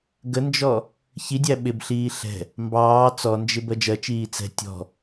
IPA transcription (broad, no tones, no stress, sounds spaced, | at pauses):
ɡ ə n d͡ʒ ɔ | ç i dʲ æ ɓ ɪ b ɬ iː ɬ ɛ̤ | m b ɑː t͡s ɔ n d͡ʒ ɪ b ɜ d͡ʒ ɜ t͡ʃ iː t͡s ɛ̤ tʲ ɔ̤